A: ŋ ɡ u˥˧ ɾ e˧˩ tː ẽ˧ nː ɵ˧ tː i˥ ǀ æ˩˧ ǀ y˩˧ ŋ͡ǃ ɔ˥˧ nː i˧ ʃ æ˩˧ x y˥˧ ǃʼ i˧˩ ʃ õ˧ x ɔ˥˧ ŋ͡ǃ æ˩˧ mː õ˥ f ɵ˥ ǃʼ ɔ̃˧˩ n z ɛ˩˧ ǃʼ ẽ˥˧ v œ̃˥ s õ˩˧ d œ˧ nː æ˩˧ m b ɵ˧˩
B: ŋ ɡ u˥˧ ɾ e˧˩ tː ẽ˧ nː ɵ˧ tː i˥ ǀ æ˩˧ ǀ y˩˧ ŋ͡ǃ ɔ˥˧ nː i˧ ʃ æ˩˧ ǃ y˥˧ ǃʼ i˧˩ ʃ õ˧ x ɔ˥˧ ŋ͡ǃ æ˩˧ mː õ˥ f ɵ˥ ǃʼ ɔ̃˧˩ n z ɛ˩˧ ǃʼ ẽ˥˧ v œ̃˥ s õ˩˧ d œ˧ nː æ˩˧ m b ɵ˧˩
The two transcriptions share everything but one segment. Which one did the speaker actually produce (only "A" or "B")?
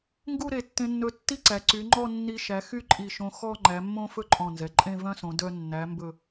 A